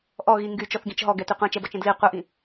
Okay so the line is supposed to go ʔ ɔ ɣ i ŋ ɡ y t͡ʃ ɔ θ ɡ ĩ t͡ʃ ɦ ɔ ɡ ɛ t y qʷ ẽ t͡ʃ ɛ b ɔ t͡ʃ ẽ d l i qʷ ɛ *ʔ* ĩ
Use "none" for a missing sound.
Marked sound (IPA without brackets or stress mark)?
ʔ